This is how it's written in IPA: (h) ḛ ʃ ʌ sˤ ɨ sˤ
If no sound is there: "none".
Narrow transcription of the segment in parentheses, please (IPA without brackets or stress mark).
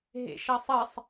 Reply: ɦ